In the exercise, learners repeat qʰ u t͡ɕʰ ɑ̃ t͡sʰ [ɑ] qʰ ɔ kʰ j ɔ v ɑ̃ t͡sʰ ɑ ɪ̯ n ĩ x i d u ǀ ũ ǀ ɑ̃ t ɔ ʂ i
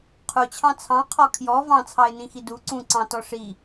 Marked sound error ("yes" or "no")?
yes